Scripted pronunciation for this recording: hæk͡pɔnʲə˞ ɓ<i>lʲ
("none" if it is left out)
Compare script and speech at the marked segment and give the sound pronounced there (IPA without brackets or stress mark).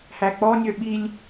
i